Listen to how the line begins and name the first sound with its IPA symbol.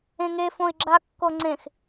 ẽ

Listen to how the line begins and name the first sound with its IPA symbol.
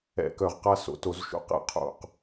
ɛ̰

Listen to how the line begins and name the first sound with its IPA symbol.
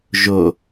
ʒ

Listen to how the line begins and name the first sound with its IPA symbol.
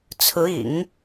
t͡sʰ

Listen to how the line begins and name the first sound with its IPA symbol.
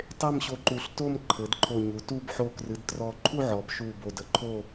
tˤ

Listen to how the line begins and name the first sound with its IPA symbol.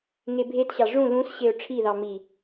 ŋ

